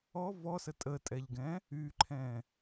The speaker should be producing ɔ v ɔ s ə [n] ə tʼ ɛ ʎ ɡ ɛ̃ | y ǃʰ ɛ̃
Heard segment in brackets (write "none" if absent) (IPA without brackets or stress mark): tʼ